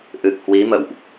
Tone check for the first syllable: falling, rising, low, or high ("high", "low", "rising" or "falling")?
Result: low